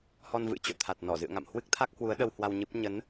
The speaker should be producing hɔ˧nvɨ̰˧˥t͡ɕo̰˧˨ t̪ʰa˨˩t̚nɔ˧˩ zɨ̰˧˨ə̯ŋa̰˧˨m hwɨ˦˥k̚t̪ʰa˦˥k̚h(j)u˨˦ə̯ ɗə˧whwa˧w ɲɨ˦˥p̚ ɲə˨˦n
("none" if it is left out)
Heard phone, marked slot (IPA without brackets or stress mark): w